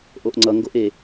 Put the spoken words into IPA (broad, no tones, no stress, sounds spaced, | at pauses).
ʔ o ʔ ŋ͡ǀ ʌ ŋ ɡ o ʔ e